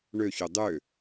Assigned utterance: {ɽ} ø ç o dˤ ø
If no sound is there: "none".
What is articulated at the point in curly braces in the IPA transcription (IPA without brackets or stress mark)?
ɳ